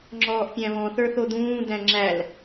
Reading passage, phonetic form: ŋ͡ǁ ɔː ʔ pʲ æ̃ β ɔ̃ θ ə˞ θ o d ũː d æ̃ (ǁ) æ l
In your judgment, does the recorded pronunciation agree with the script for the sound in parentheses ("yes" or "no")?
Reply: no